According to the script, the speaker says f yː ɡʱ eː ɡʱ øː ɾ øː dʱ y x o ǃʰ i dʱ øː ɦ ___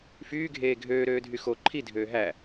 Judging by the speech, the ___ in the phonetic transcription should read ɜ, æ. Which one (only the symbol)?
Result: æ